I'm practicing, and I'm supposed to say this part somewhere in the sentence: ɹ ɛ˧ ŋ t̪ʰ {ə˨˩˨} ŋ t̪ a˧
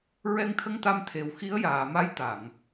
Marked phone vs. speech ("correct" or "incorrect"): incorrect